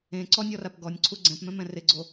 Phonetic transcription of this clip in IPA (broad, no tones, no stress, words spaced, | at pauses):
ẽ ǀɔnʲɔrap ɡɔnʲǀʰu ɡ͡ǀɛ̃pmɛ̃mɛ̃ rɪɡ͡ǀo